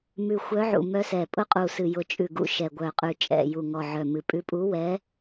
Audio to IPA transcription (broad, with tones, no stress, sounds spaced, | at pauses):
m ʉ˨˩ xʷ œ˧˥ ʕ ṵ˨˩ m œ˧˥ s ɛ˨˩ pʼ ʊ˧˥ qʼ u˨˩ s ɨ˨˩ j ʊ˨˩ t͡ʃʼ ʉ˨˩ ɡ ṵ˨˩ ʃ ɛ˨˩ ɡʷ œ˨˩ qʼ ʉ˨˩ t͡ʃʼ ɛ̰˨˩ j u˨˩ ŋ ɔ˨˩ ʕ œ˨˩ m ɨ˨˩ pʼ ʉ˧˥ pʼ u˧˥ w ɛ˧˥